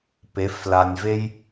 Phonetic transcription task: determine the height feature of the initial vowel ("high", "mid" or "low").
mid